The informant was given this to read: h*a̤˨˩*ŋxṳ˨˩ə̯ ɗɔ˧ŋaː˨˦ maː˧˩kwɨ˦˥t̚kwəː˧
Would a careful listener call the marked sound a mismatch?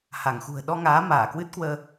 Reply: yes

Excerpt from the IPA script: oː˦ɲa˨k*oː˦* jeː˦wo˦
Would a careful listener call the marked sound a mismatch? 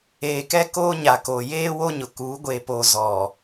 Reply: yes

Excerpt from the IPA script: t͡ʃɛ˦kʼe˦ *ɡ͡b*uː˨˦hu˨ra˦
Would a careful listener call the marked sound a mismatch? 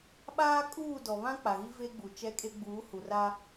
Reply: no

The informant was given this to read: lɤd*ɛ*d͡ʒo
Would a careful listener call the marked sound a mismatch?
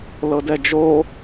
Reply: no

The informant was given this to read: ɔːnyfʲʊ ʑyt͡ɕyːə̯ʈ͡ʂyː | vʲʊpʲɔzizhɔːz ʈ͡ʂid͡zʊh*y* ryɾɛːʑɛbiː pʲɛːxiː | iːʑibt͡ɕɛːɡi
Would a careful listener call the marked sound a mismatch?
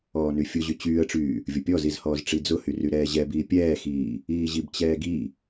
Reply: no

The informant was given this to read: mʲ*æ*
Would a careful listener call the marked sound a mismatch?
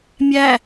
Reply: no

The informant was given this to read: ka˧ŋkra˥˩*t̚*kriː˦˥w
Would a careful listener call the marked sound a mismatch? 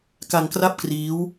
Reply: yes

